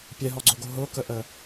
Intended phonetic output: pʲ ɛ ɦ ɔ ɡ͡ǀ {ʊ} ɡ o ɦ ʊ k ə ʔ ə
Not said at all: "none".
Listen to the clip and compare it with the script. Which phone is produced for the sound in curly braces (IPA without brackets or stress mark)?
ɵ